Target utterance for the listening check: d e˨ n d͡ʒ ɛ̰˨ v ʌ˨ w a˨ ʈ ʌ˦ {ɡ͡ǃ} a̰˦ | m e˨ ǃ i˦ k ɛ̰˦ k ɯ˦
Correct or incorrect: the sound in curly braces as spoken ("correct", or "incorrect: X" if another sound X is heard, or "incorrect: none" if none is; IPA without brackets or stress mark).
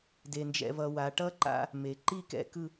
incorrect: ǃ